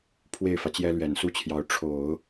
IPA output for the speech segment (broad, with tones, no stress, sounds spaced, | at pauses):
pʰ w e˥˩ ɪ̯ f ä˩ t͡ɕ j ɛ˥ l ɥ ɛ˨˩ n s u˥˩ t͡ɕʰ j ɑ˧˥ ʊ̯ ʈ͡ʂʰ o˨˩˦ ʊ̯